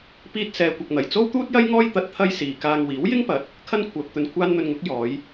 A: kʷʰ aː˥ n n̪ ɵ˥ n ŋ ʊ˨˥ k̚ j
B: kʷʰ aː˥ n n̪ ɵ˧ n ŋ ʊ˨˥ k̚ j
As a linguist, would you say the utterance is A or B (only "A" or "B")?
B